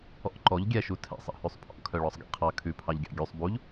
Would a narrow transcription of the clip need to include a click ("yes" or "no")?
yes